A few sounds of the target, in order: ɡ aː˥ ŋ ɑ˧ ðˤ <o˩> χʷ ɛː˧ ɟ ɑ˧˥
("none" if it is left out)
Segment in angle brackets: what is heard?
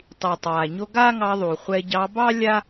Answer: u˩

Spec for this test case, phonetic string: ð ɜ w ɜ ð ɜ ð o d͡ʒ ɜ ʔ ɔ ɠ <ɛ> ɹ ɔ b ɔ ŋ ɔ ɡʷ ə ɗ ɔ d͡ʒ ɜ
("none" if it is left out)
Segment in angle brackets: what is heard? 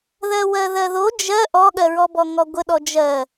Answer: ɜ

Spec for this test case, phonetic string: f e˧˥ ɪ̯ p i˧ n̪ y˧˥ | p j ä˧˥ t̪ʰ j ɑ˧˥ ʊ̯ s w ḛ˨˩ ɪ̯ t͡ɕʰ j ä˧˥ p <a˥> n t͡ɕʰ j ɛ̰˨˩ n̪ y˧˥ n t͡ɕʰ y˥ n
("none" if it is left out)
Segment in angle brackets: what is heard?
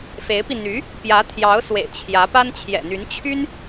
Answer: a˥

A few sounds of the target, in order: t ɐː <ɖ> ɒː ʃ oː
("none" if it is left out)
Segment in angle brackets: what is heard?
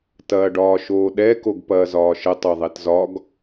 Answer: ɖ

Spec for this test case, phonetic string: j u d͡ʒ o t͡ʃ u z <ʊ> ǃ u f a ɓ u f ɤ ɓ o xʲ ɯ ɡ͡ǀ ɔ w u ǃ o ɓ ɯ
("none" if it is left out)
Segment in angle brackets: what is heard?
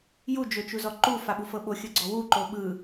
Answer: ɔ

